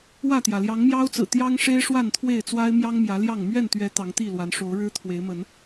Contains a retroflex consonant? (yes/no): yes